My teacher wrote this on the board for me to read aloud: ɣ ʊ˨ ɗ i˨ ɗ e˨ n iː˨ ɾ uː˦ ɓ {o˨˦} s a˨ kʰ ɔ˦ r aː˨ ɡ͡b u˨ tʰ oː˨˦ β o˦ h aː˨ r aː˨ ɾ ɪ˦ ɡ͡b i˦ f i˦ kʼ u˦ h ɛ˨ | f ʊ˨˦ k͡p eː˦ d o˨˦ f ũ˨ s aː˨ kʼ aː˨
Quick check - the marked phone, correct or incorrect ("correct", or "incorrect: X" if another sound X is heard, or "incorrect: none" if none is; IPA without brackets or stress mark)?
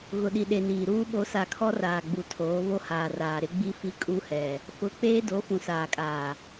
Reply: correct